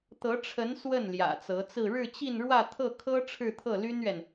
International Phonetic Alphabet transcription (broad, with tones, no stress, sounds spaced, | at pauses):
t̪ ɤ˧˥ ʈ͡ʂʰ ə˧˥ n s w ə˥˩ n l j ä̰˨˩ t͡s ɤ˧˥ t͡s ɹ̩˥˧ ɻ ɻ̩˥˧ t͡ɕ i˥˧ n ɻ w ä˥˧ t̪ʰ ɤ˥˩ kʰ ɤ˥ ʈ͡ʂʰ ɻ̩˥˧ t̪ʰ ɤ˥˩ l y˥ n ɥ ɛ˨ n